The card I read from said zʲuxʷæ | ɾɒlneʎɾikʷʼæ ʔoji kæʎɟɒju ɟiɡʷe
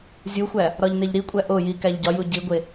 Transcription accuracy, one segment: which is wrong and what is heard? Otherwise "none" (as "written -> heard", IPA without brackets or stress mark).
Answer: l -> ʎ